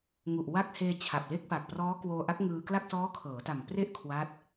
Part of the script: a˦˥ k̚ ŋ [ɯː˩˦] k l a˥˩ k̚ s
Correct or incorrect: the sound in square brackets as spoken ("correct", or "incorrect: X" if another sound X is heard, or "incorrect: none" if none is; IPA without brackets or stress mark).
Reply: incorrect: ɯː˧